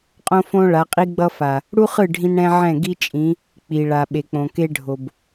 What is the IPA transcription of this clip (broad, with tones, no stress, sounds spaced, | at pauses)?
qʼ õ˦ f õ˦ ɭ a˨˦ qʼ i˦ ɡ͡b ʌ˦ f a˨ | ɽ u˦ χ ɯ˦˨ ɖʱ ĩ˦ n ɽ ɛ̃˦ ʕ ɛ̃˦˨ ɡ i˦ t͡ʃʼ ĩ˨˦ | k͡p i˨ ɭ a˨ ɓ e˨ k͡p õ˨ k e˦ ɖʱ o˨ b